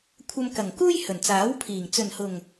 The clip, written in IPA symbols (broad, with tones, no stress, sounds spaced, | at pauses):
kʷʰ ɐ˧ m k ɐ˨˩ ŋ k uː˥ j h ɵ˨˩ n t͡s aː˨˥ w pʰ iː˨˩ ŋ t͡s ɵ˨˩ n h ʊ˨˩ ŋ